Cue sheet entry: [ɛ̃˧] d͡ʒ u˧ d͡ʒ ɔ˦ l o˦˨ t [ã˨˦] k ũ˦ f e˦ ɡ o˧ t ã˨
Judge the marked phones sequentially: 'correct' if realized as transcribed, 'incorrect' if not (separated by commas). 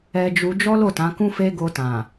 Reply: incorrect, correct